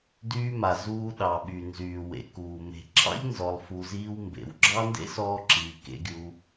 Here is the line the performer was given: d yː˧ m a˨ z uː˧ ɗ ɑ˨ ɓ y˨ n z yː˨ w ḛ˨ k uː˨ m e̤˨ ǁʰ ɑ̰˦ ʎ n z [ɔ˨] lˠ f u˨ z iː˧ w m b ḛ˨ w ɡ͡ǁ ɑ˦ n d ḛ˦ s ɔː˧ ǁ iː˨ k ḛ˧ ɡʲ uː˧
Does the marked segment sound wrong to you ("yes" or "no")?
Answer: no